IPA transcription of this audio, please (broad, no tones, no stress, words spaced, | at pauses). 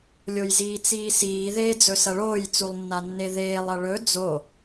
lʲojziːt͡siːsiː ðeːd͡zɵsɐɭoːj t͡sulˠnːanːeðeːlˠ ɐɭɵ d͡zo